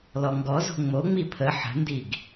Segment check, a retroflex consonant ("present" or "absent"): absent